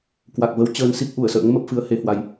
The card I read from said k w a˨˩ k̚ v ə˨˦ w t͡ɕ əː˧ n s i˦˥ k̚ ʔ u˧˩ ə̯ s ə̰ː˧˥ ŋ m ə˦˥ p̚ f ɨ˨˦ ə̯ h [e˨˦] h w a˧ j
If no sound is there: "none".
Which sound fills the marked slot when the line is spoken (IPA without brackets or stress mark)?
e˨˦